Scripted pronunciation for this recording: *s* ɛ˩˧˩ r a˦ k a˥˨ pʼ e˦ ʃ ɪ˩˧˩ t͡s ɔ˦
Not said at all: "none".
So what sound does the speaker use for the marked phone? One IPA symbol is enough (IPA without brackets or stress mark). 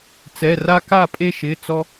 t͡s